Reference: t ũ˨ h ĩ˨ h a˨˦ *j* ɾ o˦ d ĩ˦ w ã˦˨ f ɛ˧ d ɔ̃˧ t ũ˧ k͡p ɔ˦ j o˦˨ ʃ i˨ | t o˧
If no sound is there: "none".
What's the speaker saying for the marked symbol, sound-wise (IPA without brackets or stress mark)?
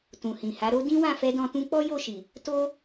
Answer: none